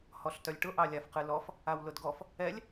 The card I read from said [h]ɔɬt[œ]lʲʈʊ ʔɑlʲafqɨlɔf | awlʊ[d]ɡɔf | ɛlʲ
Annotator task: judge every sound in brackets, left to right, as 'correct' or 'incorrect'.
correct, correct, correct

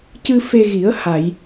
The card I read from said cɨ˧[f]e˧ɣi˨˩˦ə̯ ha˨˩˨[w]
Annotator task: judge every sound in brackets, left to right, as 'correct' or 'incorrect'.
correct, incorrect

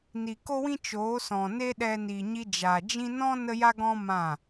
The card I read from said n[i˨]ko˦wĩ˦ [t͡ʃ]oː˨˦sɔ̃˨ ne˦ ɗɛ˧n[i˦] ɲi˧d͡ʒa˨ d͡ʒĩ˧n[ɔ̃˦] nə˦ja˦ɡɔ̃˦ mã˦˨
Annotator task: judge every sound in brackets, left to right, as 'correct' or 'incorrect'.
correct, correct, incorrect, correct

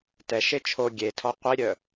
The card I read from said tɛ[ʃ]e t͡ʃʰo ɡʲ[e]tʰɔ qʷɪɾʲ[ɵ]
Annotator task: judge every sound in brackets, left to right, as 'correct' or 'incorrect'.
correct, correct, incorrect

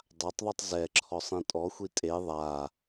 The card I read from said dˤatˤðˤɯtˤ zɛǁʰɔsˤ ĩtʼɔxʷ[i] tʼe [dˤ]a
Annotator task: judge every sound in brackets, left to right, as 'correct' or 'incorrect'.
correct, incorrect

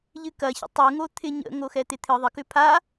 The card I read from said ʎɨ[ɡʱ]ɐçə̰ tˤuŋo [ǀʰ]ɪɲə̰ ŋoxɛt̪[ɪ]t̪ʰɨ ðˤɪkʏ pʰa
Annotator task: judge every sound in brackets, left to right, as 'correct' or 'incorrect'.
incorrect, incorrect, correct

